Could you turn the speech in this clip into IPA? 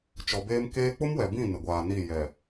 t͡ʃ ɔ˨ b eː˦ m k eː˦ k͡p ʊ˦ m w ɛ˨ b ĩ˦˨ n ɪ˨ ɡʷ aː˨ n i˦˨ j ɛ˨

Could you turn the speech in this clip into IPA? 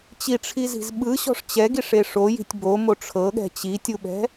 t͡ɕ i ʈ͡ʂʰ i z i̤ z ɓ ɯ ɕ ɔ̤ ʂ t͡ɕ ɛ ɡ i ʂ e ʂ o j i̤ tʲ b o m o ʈ͡ʂʰ ɤ ɠ ɛ̤ t͡ɕ i tʲ u ɓ ɛ̤

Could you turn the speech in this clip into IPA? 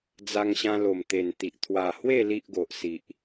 d͡z a˧ ŋ ɕ ã˧ l o˨˩ m t̪ e˨˩ n t̪ i˨ ʔ t̪ʰ w a˨˩ h w e˥˧ l i˦ ʔ ɡ o˨ ʔ s i˨ ʔ

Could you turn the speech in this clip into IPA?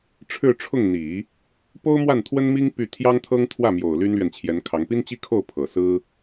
ʈ͡ʂʰ ɻ̩˥˧ ʈ͡ʂʰ ʊ˥˩ ŋ n̪ i˨˩˦ | p o˥ ʊ̯ m w a˥˩ n t̪ʰ w ə˥ n m i˥ ŋ p y˥˩ t̪ʰ j ɑ˥ ŋ t̪ʰ ɤ˥ ŋ t̪ʰ w ä˥˩ m j o˨˩ ʊ̯ l y˥ n l ɥ ɛ˨ n t͡ɕʰ j ɛ˧˥ n kʰ ɑ˧˥ ŋ p i˥ n t͡ɕ i˥ kʰ o˥˩ ʊ̯ pʰ ɤ˨˩ s ɹ̩˥

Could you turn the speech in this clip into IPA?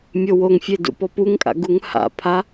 mʲ o w o ŋ fʲ e d ṵ p ɔ p u ŋ kʼ a̰ ɡ u ŋ h a̰ pʰ a

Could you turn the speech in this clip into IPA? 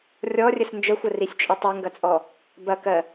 rʲ ɔ rʲ ə s n d͡ʒ ə xʷ ə r i sʲ t͡ʃʼ ə tˤ e ŋ ɡ ɐ t͡sʼ ɔ | b ɐ k ɜ

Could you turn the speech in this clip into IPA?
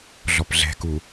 ɮ ɔ p ɮ ɛ̤ k u

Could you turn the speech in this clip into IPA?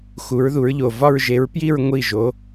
x u˨˥ ɹ ð u˨˥ ɹ ʎ o˨ v ɒ˥˧ ɹ ʒ e˨˥ ɹ p j i˥˧ ɹ ŋʷ i˥˩ ʒ o˨˥

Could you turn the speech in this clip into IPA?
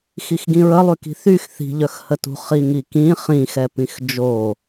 x i x ɡ ĩ ɹ ə lˠ y k i̤ θ y x θ i̤ ʎ œ x h ə t ṳ χ i ŋ i k ĩ χ ĩ x ɛ p ĩ x d͡ʒ o

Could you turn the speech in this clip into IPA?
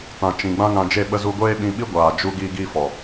t ã˨ t͡ʃ ĩ˨ ɡ͡b ã˦ ŋ ã˧ d͡ʒ e˦˨ ɓ ə˧ z u˧ ɡʷ eː˦ ɓ ĩ˧ ɓ i˦ ɡʷ aː˨ d͡ʒ u˧ ɡ iː˦ ɡ iː˦ f ɔ˨

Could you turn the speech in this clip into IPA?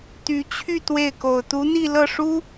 t̪ y˧˥ t͡ɕʰ y˥˧ t̪ w e˥˩ ɪ̯ k o˨˩ ʊ̯ t̪ u˧˥ n̪ i˥˧ l ɤ˥˩ ʂ u˥

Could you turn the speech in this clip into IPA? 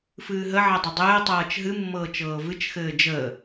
f ɨː ɦ ə ʕ ɛ dˤ ɘ dˤ ɘː tˤ ɤː t͡ʃ ɦ ɨ mː ɤː t͡ʃ ɤː v ɨ t͡ʃ x ɘː d͡ʒ əː

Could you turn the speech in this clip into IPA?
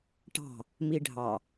ʈ ɑ̤ | m i ɖʱ ɑ

